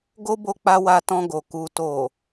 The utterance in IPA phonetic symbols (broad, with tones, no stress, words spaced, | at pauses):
ɡo˦bo˧k͡pa˧ wa˧tɔ̃˧ɡo˨ ku˨to˨